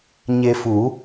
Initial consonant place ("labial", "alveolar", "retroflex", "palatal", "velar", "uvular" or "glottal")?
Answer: palatal